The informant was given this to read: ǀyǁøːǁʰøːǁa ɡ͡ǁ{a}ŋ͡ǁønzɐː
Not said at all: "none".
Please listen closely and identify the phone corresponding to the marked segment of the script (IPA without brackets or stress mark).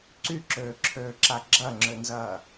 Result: ɐ